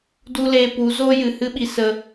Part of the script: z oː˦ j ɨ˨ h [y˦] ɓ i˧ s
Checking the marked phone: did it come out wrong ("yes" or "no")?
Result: yes